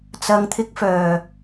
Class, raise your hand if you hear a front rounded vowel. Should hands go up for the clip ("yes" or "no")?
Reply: yes